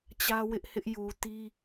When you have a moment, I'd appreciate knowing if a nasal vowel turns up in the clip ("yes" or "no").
no